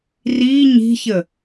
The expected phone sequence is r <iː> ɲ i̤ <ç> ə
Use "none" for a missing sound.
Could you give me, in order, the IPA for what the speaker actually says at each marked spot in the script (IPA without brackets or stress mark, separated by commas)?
iː, ç